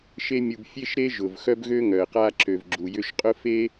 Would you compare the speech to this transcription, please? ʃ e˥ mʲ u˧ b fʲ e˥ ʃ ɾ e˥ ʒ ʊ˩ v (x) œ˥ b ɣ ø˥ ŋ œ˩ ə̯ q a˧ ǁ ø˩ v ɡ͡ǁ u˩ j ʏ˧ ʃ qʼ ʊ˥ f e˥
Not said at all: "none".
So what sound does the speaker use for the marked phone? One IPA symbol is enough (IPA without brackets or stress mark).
x